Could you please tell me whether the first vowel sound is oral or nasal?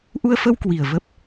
oral